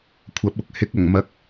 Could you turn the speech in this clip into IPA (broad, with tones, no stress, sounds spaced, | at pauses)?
kʷʰ ɐ˨˥ p̚ ʊ˨ k̚ h ɪ˨˥ k̚ ɐ˨˩ ŋ m ɐ˨˥ k̚